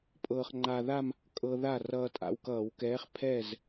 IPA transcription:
pʼ ɤː˧ χ ŋ͡ǃ a˧ ð a˥˧ m | kʼ ɤ˧ ð a˥˩ r ʌː˧ tʼ a̰˧ w k ʌː˧˩˧ w k ɛː˨˥ χ pʰ ɛ˥˩ z

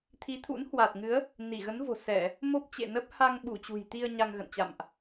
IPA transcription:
t̪ʰ i˨˦ t̪ʰ ṵ˧˥ n h w a˨˩ t̚ ŋ ɨ˨˦ ə̯ | n i˧˩ ɣ ə˨˦ n v o̤˨˩ s ɛ˧˩˨ | m o˦˥ p̚ t͡ɕ ḛ˧˨ n ə˦˥ p̚ h a˧ ŋ ɓ u˧˩ t͡ɕ ṳ˨˩ j t̪ i˧ ə̯ ɲ a˧ ŋ ɣ ə̰˧˨ n t͡ɕ a̰˧˨ m ʔ

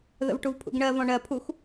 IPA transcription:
ð ə̰ v ʈ u v pʰ ṵ ɡ ɳ ɜ v ɔ̃ ɳ ɜ pʰ u x

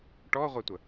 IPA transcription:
ʈ ɔ ʁʷ æ tʷ ə

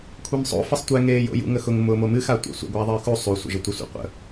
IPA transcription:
kʷʰ e m sˤ o̰ f ə sˤ tʷ ɛ ŋ eː j o̰ j ṵ ŋ ə x ʊ ŋ m ʊː m o m ɨ x a tʷ ḛ sʷ ə̰ ɡʷ aː ðˤ ɨː x u sˤ u sʷ ə̰ ʒ ə tʷ ə sʷ ḛ qʷ ə̰

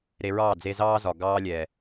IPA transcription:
ɾ e˧ ɹ ɑː˦˨ d͡z e˧ z ɑː˦ z ɒ˨ ɡ ɑː˦ lʲ ɛ˨

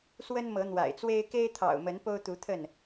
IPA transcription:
s w ə˦ n m ɤ˨˦ n̪ w a̰˨˩ ɪ̯ t͡s w e˦ ɪ̯ k e˦ ɪ̯ t̪ʰ ɑ̰˨˩ ʊ̯ m ə˨˦ n p o˦ ʊ̯ t̪ u˨˦ t̪ʰ ə˥˨ n

